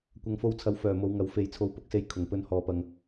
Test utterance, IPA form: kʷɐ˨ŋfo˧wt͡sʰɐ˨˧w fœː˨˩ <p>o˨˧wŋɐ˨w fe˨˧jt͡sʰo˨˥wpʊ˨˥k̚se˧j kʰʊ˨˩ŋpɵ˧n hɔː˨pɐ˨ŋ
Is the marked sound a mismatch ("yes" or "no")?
yes